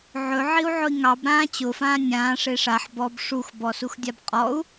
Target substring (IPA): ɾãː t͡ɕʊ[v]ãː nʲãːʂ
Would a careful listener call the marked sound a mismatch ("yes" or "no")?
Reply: yes